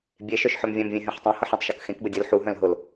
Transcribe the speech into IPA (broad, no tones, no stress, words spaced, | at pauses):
bʲeʃœʃ ħœmvʲɛ̃mvʲẽ ɦɛ̃ħtˤɛ̃hɤħ ɛ̃tˤʃɤkxẽkbə dʲəl ħuɦœ̃l ɦʊl